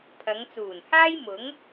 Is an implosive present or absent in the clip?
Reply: absent